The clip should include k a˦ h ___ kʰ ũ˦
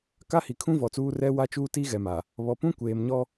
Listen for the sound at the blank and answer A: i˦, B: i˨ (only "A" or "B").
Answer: B